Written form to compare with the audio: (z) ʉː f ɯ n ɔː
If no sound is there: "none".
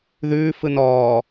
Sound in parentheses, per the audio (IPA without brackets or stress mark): ð